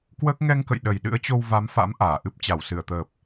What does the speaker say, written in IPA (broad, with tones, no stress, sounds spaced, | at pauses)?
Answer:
k w əː˦˥ k̚ ŋ ɛ˧ ŋ k ə̰˧˨ j ɗ ə˨˩ j ɗ ɨ̰˧˥ ə̯ t͡ɕ o˧ w v a˨˦ m f a̰˧˥ m ʔ aː˧˩ ʔ ɨ˦˥ p̚ t͡ɕ a˧˩ w s ɨ˧˩ ə̯ t̪ əː˨˩ p̚